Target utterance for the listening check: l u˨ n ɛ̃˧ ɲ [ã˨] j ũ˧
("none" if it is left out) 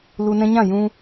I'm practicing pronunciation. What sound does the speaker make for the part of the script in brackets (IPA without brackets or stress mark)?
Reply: ã˦˨